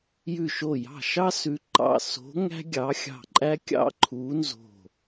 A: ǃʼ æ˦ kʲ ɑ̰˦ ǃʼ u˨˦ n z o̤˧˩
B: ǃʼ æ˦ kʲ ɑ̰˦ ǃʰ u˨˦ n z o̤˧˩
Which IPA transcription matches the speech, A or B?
B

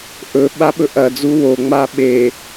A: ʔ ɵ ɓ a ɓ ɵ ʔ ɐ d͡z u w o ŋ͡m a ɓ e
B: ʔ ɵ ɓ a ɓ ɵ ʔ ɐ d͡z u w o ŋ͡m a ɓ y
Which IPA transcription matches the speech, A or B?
A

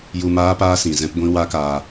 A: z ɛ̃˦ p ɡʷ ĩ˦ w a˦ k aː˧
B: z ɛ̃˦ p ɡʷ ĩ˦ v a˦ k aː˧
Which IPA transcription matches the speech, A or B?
A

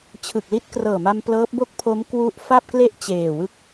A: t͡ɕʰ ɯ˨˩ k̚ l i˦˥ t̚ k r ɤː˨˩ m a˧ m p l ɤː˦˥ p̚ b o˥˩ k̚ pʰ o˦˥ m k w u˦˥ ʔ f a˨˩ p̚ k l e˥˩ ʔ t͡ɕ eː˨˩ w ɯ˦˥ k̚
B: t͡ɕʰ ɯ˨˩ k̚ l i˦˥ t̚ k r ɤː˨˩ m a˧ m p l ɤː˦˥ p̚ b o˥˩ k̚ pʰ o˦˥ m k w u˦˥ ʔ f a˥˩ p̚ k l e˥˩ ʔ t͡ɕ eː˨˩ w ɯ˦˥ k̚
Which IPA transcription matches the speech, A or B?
B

